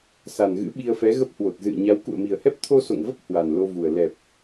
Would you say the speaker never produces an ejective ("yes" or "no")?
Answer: yes